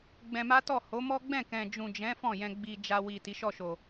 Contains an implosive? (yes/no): no